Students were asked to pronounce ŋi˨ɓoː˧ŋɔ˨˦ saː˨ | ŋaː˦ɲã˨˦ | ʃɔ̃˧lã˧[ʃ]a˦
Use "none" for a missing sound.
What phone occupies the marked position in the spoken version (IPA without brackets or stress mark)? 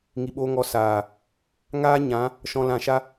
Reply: ʃ